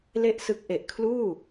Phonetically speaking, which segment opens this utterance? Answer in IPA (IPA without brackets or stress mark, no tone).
l